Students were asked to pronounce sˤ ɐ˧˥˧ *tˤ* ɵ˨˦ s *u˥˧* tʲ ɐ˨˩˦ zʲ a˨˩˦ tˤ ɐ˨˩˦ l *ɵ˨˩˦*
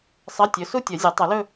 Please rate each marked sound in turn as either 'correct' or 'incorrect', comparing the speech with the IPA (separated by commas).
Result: incorrect, incorrect, incorrect